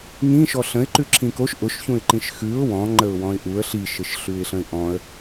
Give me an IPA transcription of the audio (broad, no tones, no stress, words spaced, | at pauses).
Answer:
ŋĩʃɔ ɬə̃ɪ̯ǃʉ ǁʰĩkoʃ ʔʊʃçũɪ̯ǃĩʃ xʉʊ̯ wɔ̃ŋ͡ǃəʊ̯ wɔ̃ɪ̯ʔuə̯ ɬiʃɘʃɬʉɪ̯ɬə̃ɪ̯ ʔɔ̃ə̯